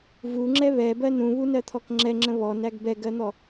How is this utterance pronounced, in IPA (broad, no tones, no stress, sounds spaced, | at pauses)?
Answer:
v u ŋ͡ǁ ɛ β ɛ b ɜ n ũ β u n ɜ t̪ʰ ɔ k ŋ͡ǁ ɛ ŋ͡ǁ ə̃ β ɔ n æ ɡ b ɛ ɡ ɜ n̪ ɔ